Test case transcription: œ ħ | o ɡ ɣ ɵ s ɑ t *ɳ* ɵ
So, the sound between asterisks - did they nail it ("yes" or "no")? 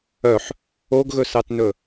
no